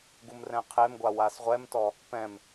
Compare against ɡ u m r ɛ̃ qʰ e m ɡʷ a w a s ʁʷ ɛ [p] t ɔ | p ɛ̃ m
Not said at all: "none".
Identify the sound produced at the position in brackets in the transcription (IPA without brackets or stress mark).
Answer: m